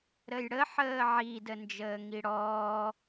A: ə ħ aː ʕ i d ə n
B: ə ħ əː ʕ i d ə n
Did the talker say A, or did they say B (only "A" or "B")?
B